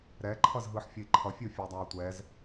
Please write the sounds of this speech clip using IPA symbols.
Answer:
ɾɛǃʰʌzɦɯħfʲʌi̯ ǃʰʌfʲofʲɯu̯dˤau̯ tʷɛz

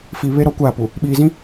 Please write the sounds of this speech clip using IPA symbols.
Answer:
fi˨ βe˦ ɾɔ˦kʷaː˦˨pu˨ | ɓiː˨zĩ˦

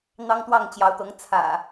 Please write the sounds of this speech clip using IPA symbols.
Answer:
n̪ɑ˦ŋt̪wɑ˥˨ŋt͡ɕjɑ˨˦ʊ̯t̪ɤ˨˦ŋ t͡sʰä̰˨˩

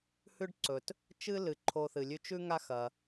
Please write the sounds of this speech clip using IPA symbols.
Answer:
hʉ˥ɖǀɵ˩t | t͡ʃɨ˥lɨ˩ ǃʰo˧θɨ˩lʲʉ˥ t͡ʃʉ˥ ŋa˥xɐ˩

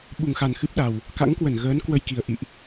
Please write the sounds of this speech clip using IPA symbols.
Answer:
ɓu˨˩ŋxa˨˩n xɨ˦˥p̚ɗa˨˩w | ka̰˧˥ŋkwə˧˩n ɣəː˨˦n kwə˧jki˨˩ə̯ ʔḭ˧˨ʔ

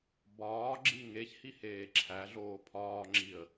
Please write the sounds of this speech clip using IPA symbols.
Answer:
bɒːɡ͡ǁi ŋeçhiheː ǁʰæɮoː pʰɒːŋ͡ǁiə̯

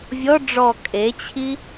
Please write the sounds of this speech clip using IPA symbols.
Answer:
vʲɔ ɖ͡ʐɔ kʼet͡ɕʰi

